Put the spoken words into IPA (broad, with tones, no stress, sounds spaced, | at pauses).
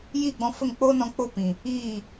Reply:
j iː˦˨ ɡ͡b ɔ̃˧ f ə˦˨ ŋ k͡p oː˦ n ɔ̃˧ k͡p o˦ p ĩ˨ | iː˦˨